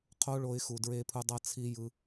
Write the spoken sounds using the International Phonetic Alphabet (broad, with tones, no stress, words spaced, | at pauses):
qʰo˦ɭo˧ɪ̯ xu˨dɹe˧pʰu˧ dˤʌ˦t͡sʰi˦ jɯ˧